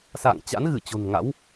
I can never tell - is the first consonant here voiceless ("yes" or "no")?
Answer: yes